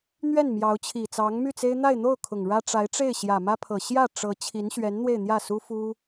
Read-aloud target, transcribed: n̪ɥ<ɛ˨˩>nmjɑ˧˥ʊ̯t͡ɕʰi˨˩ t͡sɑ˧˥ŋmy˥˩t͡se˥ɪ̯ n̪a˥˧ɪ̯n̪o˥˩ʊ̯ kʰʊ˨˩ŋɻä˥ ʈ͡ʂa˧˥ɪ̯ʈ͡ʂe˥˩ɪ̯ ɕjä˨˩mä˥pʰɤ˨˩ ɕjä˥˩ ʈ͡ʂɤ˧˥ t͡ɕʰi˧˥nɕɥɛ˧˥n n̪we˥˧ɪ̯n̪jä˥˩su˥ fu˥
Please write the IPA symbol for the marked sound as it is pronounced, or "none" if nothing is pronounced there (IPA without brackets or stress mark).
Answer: ɛ˥˩